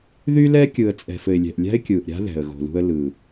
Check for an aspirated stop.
absent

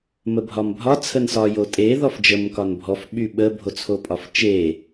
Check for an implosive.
present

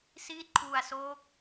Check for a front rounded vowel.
absent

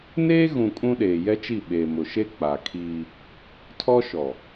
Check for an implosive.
present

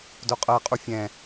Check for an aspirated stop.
absent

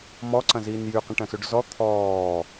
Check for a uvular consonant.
present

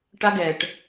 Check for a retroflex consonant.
present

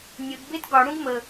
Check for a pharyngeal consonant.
absent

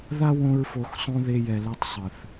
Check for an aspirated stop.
absent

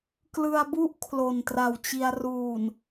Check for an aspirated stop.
present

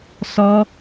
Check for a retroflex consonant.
absent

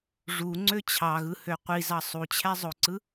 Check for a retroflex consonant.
present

